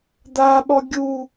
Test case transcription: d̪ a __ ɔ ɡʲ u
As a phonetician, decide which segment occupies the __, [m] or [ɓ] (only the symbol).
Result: ɓ